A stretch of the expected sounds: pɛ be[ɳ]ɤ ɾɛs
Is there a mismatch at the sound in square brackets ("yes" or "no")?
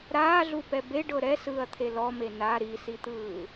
yes